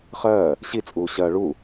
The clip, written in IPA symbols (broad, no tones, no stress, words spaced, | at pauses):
χɜː | ɕit͡sʼuː ɕɜ ɭu